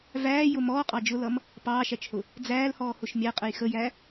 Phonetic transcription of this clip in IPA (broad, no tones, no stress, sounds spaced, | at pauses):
v æː j ʊ m ɔː qʼ ɑ d͡ʒ ʊ l ʌ m | p ɑː ʃ æ t͡ʃ h ʊ | d͡z æː l h ɔː h ʊ ʃ mʲ æ qʼ ə j x ə j æ